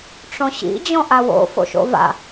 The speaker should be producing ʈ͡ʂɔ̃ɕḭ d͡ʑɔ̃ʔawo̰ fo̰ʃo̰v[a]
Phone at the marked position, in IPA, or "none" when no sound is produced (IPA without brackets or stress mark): a̰